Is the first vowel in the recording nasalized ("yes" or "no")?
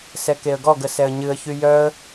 no